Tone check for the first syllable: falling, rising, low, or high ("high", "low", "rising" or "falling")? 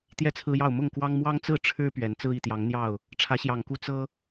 falling